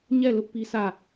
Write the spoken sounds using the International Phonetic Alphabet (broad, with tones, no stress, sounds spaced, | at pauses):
ɲ ɛ˦˨ l ʊ˦ ʔ p i˦ sʰ ä˦˨